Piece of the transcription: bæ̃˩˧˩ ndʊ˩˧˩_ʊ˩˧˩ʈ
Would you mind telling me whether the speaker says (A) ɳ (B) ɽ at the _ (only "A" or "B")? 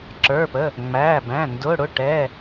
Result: B